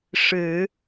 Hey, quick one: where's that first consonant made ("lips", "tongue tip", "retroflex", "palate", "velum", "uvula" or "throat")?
retroflex